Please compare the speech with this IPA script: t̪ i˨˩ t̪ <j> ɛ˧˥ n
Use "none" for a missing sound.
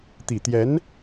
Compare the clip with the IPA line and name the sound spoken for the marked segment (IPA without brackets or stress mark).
j